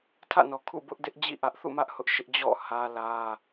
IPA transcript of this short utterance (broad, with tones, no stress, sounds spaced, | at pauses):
tʰ ä̰˦˨ n ɔ˨ kʰ ṵ˦˨ b ʊ˦ ʔ d ɪ˦ ʔ d͡ʑ ḭ˦˨ ʔ ä˦ ʔ θ ṵ˦˨ m ä˦ ʔ h ʊ˦ ʔ ʃ ɪ˦ ʔ d͡ʑ ɔ̰˦˨ h ä˦ l ä˦